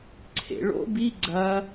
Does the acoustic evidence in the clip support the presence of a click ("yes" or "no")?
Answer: yes